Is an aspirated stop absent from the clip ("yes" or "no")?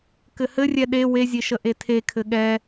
no